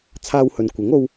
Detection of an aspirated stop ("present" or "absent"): present